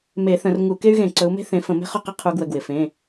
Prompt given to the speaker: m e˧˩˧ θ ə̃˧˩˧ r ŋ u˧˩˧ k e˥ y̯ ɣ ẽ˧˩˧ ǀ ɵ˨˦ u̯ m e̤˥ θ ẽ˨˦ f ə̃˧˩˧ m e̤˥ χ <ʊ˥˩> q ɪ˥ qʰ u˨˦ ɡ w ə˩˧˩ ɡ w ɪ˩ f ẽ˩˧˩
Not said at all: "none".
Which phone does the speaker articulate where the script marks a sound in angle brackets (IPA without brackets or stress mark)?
ʊ˥˩